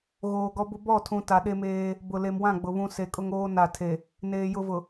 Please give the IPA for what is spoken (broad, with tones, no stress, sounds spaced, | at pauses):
ɣ oː˨ ɡ ɔ˦ b ʊ˦ b ɔ˦˨ tʰ ũ˨ t a˨ ɗ e˦ m eː˦ | b ʊ˨ l e˨ m w ã˦˨ ɡ͡b ʊ˨ β ũ˦ s e˨ kʼ ʊ˦ ŋ oː˦ n a˨ tʰ e˨ | n eː˨ j ʊ˦ v ʊ˨